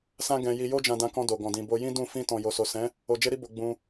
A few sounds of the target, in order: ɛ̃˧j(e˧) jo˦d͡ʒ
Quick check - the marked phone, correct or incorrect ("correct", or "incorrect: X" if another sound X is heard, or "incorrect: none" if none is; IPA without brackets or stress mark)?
incorrect: i˧